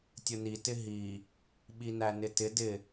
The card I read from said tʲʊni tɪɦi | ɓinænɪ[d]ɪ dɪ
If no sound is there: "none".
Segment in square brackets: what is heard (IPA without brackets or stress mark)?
t